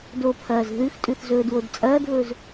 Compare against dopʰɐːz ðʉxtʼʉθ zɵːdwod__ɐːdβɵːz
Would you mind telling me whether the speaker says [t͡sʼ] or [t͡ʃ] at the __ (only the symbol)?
t͡sʼ